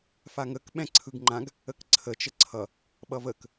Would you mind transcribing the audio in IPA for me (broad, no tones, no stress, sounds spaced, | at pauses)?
f a ŋ ə k ɓ ɛ̃ ǀʰ ɯ ɡ ŋ͡ǃ ã ɡ | ə k ǀʰ ə t͡ʃ ə ǀʰ ʌ | ɓ ʌ v ə k